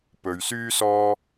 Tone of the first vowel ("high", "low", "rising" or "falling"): low